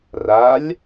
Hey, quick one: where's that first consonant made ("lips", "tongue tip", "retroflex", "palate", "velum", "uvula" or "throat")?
tongue tip